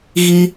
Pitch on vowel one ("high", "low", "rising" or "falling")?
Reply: high